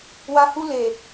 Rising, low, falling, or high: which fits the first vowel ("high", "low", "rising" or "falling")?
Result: high